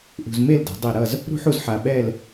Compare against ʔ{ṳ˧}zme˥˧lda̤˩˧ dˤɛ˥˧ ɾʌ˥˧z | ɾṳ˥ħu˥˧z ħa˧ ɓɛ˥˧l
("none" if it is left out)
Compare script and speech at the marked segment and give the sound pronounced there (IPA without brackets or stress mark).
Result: ṳ˧